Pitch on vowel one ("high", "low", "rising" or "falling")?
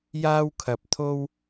high